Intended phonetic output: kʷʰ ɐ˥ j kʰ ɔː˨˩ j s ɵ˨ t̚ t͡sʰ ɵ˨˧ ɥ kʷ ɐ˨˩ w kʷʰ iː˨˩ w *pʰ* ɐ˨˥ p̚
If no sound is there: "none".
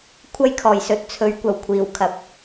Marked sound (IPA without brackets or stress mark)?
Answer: kʰ